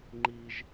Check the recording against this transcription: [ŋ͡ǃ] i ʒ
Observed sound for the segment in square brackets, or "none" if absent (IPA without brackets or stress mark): ŋ͡ǃ